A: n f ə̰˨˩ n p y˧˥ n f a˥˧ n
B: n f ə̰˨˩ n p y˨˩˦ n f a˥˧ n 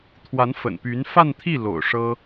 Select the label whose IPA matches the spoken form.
A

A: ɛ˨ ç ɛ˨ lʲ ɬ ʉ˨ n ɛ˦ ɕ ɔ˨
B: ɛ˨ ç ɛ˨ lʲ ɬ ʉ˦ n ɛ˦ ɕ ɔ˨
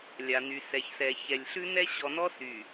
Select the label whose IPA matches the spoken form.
B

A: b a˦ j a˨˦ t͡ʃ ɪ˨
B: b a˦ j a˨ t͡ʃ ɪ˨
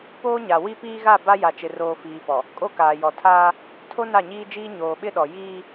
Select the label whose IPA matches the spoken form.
B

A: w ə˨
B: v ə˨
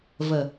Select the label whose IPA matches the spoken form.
B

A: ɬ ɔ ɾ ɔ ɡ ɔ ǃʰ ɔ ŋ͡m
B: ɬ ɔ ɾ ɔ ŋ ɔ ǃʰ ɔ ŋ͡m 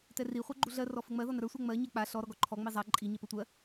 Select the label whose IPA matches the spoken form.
A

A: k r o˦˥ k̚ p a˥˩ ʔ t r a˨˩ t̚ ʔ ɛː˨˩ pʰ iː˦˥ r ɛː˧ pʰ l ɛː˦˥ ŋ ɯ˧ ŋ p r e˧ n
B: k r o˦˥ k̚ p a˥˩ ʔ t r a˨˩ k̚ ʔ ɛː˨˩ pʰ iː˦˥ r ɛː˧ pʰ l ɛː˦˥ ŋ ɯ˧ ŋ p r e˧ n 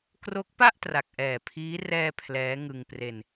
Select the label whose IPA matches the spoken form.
B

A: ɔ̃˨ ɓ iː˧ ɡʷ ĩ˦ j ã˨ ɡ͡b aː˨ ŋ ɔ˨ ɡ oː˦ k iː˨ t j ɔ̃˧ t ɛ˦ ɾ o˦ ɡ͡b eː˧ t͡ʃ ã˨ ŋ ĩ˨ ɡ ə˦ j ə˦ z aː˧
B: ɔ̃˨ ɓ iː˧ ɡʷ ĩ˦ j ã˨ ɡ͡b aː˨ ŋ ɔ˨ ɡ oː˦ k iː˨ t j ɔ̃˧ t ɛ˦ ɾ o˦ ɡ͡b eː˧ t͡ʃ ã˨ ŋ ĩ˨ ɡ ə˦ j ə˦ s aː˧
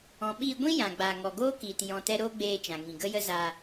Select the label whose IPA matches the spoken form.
A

